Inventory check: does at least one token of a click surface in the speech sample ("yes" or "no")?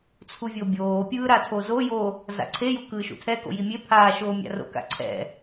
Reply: yes